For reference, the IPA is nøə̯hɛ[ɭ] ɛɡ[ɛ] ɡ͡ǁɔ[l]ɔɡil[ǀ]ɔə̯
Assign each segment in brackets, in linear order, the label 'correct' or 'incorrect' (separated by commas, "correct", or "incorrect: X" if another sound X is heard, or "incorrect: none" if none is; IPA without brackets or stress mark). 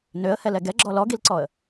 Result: incorrect: l, correct, correct, correct